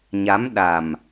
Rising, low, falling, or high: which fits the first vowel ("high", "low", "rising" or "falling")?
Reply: rising